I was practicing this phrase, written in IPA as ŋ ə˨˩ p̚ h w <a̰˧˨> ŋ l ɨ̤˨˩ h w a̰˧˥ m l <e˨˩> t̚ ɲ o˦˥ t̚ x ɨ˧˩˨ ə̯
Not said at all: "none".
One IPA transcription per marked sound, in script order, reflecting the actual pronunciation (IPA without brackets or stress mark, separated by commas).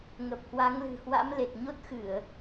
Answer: a˨˦, e˨˩